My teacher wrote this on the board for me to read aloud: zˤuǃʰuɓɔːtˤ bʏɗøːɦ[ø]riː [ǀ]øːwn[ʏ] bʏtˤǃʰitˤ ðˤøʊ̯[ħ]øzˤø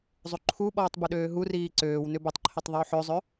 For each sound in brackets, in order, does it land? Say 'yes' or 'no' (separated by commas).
no, yes, yes, yes